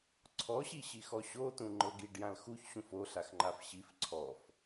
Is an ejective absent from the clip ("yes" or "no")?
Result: yes